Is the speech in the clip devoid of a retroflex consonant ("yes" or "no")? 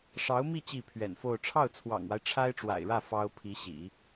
no